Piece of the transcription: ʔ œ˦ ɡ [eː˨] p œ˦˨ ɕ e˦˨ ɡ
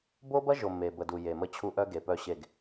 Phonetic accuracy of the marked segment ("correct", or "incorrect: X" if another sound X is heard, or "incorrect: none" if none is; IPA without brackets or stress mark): incorrect: e˨